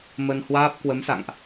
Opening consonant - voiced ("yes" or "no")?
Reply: yes